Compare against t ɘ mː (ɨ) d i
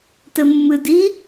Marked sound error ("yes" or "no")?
no